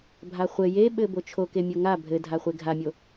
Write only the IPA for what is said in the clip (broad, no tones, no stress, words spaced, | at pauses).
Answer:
bʱaχʷɘ jeɓɘ bot͡ʃʰoke mʲoŋa bʱɘdʱaχʷe ɡʱamʲo